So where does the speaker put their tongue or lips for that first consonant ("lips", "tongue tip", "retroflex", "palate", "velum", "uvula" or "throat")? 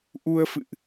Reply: throat